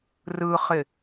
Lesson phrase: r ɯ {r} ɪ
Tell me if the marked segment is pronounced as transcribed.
no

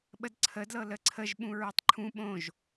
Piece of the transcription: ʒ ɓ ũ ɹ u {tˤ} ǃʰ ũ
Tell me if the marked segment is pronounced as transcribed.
yes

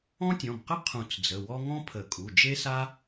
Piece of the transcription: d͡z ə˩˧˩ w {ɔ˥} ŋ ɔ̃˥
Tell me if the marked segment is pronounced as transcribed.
yes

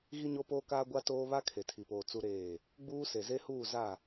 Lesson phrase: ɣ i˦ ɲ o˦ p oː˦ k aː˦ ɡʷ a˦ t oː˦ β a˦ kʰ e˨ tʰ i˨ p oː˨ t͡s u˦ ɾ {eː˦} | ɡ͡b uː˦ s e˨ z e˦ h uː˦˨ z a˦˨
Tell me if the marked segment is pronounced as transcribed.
no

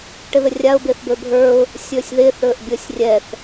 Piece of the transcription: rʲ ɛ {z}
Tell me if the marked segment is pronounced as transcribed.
no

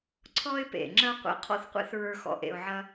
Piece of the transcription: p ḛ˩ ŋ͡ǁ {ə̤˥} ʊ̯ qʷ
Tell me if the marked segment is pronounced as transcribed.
no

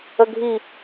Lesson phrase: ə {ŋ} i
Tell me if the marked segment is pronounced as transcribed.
no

